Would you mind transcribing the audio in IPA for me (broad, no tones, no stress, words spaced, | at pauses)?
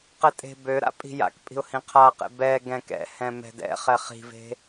qɛtʼe̤bøɾa̰ pʼi̤ja̰kpʼi̤ʊ̯ hĩqʰaqḛ bɛ ɡɛ̃kɛ̰hɛ̃ mɛ̤dɛ̰χɛ χi̤ve̤